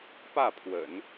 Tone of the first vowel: falling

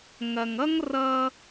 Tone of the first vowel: low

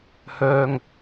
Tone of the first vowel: low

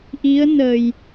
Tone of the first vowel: rising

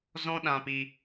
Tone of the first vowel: high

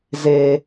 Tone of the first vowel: low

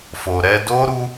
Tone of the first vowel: low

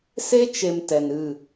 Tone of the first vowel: high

